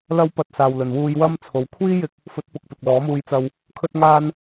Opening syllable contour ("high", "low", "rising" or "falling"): high